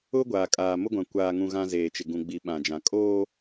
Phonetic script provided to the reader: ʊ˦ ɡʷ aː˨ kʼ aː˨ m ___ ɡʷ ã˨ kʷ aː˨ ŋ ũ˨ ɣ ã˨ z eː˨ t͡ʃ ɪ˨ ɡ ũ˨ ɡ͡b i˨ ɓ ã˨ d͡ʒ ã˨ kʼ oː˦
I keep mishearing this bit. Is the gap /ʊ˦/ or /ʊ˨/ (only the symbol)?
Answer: ʊ˦